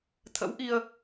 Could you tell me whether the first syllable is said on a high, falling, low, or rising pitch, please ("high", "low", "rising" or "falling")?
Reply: rising